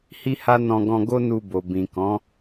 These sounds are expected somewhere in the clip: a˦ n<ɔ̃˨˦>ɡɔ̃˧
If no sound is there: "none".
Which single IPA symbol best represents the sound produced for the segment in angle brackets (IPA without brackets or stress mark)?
ɔ̃˧